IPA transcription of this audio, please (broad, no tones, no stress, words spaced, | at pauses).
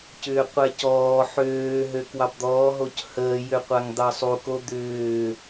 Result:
cʏːqʷɛcɔː ħøː ɦøkwɑbd̪ɔː ɦochəː jøqʷaŋd̪ɑsˤu kod̪ʏː